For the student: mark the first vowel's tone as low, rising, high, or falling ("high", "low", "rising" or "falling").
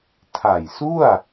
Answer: low